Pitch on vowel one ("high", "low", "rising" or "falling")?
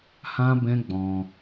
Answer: high